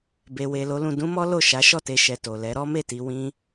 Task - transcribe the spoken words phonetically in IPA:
b e˨ w e˨ l o˨˦ l ũ˧ d ũ˦ m ɔ˦ l o˦˨ ʃ a˨˦ ʃ ɔ˦˨ t e˧ ʃ ɛ˨ t o˨ l ɛ˨˦ ɾ ɔ˦ m e˦˨ t i˧ w ĩ˦

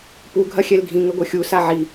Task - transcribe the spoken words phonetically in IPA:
p u ɡʱ ɐ xʲ ɛ l ɡʱ ĩ ŋ ɘ ɡʷ ɐ xʲ u s a ʕ i

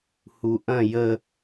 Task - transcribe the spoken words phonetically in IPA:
h u ʔ ɐ̃ j ə

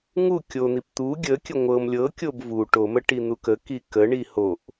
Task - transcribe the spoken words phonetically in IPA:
ŋ u kʲ o n̪ i p t̪ u ɡʲ ə kʲ ə ŋʷ ɤ m lʲ ɤ kʲ o b v u ʈ o m ə ʈ i n̪ u k ə k i k ə ɳ i h o ʔ

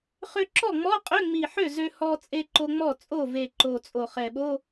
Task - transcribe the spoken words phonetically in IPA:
χ ø˧ ǁ ɔ˥˩ ŋ͡m ɔ˧˥˧ qʼ ø˧˥˧ ŋ͡m i˨˩ ħ ø˥˩ z ø˧ h ɔ˧ t͡sʼ e˧ ǃ o˧ ŋ͡m ɔ˥˩ t͡sʼ o˥˩ v e˨˩ ǃ o˨˩ t͡sʼ o˨˩ χ ɛ˨˩ ɓ o˧˥˧

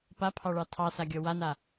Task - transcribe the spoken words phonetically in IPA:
p a pʰ ɑ ɭ ɑ tʰ ɑ s a ɡʲ ɔ w a n a

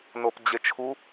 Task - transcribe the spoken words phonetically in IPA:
n o p d͡ʑ e t͡ʃʰ u

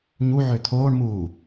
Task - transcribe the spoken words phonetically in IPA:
ɲ u ʕ ø t̪ʰ oː ɳ m uː

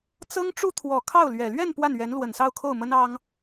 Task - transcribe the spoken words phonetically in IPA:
t͡s ɤ˥ ŋ ʈ͡ʂ u˥ t̪ʰ w ɔ˨˩ kʰ ɑ˥˩ ʊ̯ l ɥ ɛ˨˩ l ɥ ɛ˥˧ n p w a˥˩ n ɥ ɛ˧˥ n l w ə˨˩ n s ɑ˥˧ ʊ̯ kʰ o˥˩ ʊ̯ m ə˥ n ɑ˥ ŋ

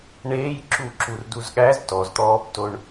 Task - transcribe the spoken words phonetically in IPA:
ɳ eː j ǁ u ǁ u r d u z ɠ æ z t ɔ z t̪ ɔː p t o ɳ

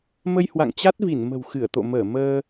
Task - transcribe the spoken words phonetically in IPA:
m ə˧ j h w a̰˧˨ ŋ t͡ɕ a˦˥ t̚ v i˧˩ n m ə̤˨˩ w x ɨ˧˩ ə̯ t̪ o̰˧˨ m əː˧˩ m əː˧

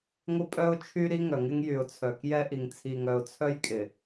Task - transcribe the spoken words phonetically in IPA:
ŋʷ ɪ˦ pʼ œ˦ ʊ̯ t͡ʃʰ y˦ ɾ i˦ ŋ œ˨ ŋ ɪ˦ ŋ j y˨ ʊ̯ t͡sʰ œ˨ k j ɛ˦ ʔ i˨ ŋ t͡sʰ i˨ ŋ œ˨ ʊ̯ t͡sʰ œ˦ j kʼ ɪ˨

